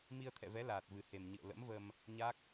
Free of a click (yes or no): yes